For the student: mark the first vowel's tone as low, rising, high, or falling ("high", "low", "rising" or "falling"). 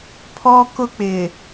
high